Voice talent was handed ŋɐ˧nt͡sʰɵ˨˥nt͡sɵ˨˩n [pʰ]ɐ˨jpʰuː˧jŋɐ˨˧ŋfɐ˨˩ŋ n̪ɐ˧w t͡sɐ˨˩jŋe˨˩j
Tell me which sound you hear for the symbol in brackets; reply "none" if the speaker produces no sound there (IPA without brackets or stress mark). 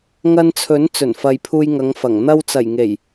f